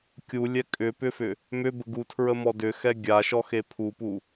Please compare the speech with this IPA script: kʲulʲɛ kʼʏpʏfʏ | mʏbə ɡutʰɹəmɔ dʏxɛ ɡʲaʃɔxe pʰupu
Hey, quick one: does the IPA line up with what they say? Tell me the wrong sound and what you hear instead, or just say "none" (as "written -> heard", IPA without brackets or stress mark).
none